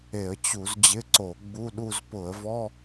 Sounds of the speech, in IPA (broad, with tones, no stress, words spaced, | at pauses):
e˧˩˧ə̯t͡ɕu˧˩˧z d͡ʑɪ˧˥˧ǀo˧˩˧ ɡ͡bu˧˥˧ ɗu˥˧z pʊ˧˩˧ə̯vɔ˧˥˧